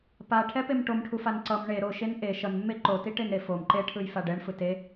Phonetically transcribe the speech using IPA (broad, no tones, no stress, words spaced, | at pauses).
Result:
paʈʰɛpem ʈomʈʰufan ǀʌm ɳe ɾoʃen ʔe ʃʌnmːe ǃotiʈenɾe fom ǃeʈʰɯjfa ɖɛɳfɯ te